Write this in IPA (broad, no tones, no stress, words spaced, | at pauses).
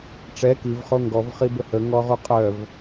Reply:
ʈ͡ʂɛ kivχo ŋɡɔvχibə həŋɔʁu qʼœv